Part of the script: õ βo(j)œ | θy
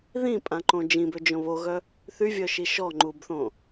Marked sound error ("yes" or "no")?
yes